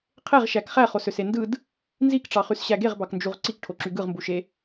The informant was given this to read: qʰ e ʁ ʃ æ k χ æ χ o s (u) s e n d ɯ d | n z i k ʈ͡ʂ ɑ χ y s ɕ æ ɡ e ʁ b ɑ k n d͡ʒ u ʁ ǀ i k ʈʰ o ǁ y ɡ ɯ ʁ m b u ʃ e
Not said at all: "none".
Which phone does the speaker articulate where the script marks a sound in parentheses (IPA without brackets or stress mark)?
ø